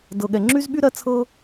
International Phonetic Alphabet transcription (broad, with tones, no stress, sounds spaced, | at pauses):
d ɤ˩ ɠ ɛ˩ ŋ͡ǁ y˥ z ɓ y˥ ɾ ɜ˥ t͡sʰ ɤ˥